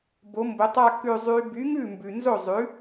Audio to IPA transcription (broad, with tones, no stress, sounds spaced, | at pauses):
b o˨˥ m b ʊ˨˥ tˤ a˥˧ k ʉ˥˧ zˤ y˦˥ b y˨˥ ŋ ʉ˥˩ m b ʉ˨ n z o˥˩ zˤ ʉ˨˥